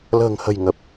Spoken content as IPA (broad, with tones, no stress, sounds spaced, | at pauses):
l ə̤ː˨˩ ŋ h ə̤˨˩ j ŋ ə˨˩ p̚